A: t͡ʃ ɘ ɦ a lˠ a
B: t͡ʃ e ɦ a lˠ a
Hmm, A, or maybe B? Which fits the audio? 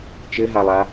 A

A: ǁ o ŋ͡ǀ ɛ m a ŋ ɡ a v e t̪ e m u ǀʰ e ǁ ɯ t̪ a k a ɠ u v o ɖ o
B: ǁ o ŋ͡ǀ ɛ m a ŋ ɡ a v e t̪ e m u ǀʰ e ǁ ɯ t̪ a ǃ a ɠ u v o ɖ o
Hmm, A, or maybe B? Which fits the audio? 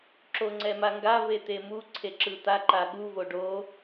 B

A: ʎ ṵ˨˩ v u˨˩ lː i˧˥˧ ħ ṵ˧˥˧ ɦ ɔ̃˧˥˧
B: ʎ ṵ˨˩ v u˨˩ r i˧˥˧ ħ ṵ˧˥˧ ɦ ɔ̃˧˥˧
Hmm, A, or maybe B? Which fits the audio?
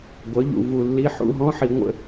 A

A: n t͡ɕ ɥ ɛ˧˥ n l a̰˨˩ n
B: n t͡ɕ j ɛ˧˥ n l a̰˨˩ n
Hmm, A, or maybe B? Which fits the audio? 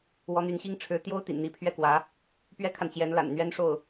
B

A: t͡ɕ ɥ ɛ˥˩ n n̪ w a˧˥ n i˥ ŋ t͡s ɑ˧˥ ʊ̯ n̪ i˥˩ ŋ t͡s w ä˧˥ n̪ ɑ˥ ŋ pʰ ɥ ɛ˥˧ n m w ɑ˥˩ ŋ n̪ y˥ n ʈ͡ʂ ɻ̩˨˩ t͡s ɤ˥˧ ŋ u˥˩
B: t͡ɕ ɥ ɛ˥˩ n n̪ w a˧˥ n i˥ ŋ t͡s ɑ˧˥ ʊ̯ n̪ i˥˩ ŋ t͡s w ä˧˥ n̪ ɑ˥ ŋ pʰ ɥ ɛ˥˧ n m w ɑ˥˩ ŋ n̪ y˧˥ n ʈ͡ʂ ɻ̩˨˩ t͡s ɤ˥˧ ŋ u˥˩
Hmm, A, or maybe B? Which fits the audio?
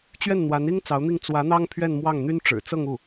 A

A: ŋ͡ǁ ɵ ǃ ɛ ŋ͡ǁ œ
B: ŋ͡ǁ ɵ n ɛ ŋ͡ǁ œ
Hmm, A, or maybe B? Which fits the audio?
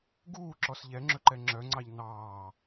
A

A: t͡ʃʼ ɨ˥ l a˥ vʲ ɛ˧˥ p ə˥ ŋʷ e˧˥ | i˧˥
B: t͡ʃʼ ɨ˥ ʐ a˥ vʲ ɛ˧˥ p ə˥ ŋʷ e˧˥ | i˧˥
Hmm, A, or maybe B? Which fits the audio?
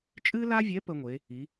A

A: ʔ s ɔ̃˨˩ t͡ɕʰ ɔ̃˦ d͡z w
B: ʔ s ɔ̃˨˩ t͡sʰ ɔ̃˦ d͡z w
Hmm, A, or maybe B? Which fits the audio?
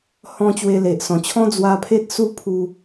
A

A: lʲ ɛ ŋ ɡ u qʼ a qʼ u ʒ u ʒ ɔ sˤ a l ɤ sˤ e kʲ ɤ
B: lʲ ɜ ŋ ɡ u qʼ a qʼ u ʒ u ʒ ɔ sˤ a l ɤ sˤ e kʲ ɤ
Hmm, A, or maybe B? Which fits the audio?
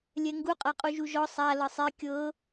A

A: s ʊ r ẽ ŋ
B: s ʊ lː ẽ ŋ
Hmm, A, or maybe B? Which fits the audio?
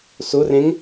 A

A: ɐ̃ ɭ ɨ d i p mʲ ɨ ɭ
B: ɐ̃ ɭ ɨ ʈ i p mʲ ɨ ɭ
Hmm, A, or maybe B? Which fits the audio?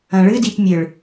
A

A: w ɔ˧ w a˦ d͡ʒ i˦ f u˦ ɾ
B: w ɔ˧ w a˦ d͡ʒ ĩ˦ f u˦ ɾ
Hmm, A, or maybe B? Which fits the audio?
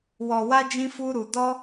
B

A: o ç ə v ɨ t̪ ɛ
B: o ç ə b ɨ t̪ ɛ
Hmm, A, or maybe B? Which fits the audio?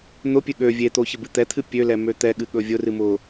B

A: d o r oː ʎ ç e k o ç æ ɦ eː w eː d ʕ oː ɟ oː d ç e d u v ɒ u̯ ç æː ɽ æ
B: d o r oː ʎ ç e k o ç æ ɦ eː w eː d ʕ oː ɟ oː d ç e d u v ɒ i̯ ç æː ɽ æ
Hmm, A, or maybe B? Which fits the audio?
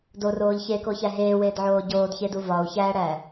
A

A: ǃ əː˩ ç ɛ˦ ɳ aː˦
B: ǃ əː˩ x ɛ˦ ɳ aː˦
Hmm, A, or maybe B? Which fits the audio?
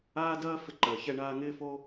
A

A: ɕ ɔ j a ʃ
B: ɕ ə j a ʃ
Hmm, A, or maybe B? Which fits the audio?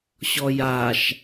A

